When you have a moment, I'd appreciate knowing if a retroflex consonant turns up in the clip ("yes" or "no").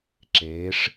yes